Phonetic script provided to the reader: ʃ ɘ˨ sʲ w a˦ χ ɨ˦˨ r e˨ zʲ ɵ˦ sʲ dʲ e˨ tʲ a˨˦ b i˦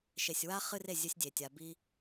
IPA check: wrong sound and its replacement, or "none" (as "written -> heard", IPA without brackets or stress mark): ɘ˨ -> e˨